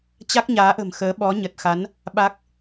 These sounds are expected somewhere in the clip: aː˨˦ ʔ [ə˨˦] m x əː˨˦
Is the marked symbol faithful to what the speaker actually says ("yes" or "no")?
no